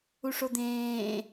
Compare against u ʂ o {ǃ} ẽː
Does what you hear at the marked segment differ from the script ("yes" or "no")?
yes